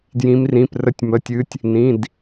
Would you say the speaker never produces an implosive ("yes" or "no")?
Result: yes